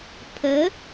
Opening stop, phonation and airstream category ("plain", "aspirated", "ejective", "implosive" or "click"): aspirated